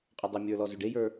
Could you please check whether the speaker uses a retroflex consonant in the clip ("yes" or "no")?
yes